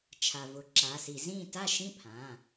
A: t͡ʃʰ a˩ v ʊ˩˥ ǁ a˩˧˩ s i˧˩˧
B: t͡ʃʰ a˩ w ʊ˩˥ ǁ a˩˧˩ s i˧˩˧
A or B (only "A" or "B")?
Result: A